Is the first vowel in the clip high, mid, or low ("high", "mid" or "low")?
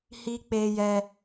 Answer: high